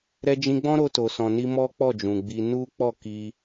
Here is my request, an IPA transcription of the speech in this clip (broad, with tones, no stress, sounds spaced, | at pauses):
ɾ ɛ˧ d͡ʒ ĩ˧ ɡ͡b ɔ̃˦ ɾ o˧ t o˨ s ɔ̃˨ n i˧ m ɔ˦ k͡p ɔ˦˨ d͡ʒ ũ˨ ɡ͡b i˧ n u˦ k͡p ɔ˦˨ k i˧